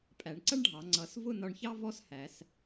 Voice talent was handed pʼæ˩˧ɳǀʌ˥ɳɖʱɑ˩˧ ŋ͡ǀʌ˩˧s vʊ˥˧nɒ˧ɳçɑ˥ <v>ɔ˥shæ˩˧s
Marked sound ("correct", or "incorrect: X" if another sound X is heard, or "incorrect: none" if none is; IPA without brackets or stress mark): correct